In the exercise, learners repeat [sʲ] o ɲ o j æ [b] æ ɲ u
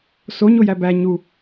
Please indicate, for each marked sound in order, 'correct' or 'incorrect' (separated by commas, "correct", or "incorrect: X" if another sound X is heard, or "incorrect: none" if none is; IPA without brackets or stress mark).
incorrect: s, correct